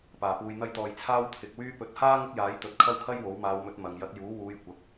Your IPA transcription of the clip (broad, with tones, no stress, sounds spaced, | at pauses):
p aː˨˩ p uː˨ j n̪ ɐ˧ j t̪ ɔː˨ j t͡sʰ aː˥ w t̪ʰ ɪ˨ k̚ w yː˥ p ɵ˨˥ t̚ h aː˥ ŋ ɪ˥ k̚ j aː˨˥ j t̪ ɵ˨˥ t̚ kʰ ɐ˥ w kʰ ɐ˥ j w o˨˥ w m aː˨˧ w m ɵ˨˥ t̚ m ɐ˨ ŋ j ɐ˨˥ t̚ j uː˨˥ w uː˨˧ j kʷ ɐ˨ k̚